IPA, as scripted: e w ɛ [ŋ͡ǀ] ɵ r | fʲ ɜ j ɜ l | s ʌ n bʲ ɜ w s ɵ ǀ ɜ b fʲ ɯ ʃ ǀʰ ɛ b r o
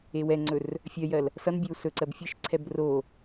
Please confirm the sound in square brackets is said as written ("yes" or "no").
yes